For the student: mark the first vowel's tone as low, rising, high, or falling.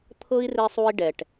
high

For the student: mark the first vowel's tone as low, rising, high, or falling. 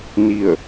falling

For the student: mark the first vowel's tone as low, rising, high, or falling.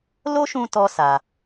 high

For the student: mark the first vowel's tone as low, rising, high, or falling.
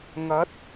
rising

